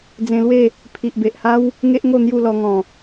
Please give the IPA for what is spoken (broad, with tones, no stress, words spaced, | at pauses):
d͡zẽ˧lwe˥˧ | pʰi˨ʔbe˨ʔha˦w | ŋe˦ʔŋo˥˧ n̪ju˥˧lɔ˧ŋɔ̃˨˩